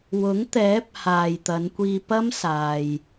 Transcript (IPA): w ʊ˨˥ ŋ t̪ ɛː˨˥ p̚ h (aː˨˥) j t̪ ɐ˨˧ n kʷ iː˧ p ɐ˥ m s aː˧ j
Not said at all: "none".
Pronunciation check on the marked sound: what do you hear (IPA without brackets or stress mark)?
aː˨